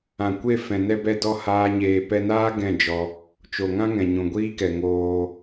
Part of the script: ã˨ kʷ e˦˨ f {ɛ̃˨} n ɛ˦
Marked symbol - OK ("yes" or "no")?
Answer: yes